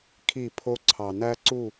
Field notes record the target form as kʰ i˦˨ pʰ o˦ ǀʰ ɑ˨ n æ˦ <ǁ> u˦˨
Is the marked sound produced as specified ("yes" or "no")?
no